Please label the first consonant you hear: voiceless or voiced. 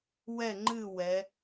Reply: voiced